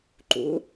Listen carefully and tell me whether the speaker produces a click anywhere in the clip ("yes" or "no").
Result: yes